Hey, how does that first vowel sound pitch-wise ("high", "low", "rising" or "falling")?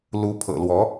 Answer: rising